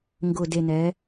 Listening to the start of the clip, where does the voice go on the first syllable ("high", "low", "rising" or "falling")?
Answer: low